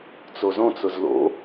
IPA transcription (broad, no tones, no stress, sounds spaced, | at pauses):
t͡s o z õ t͡s ʊ z l o̰